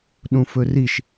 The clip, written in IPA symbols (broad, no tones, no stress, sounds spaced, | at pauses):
ɗ ũ f ɵ r i ʃ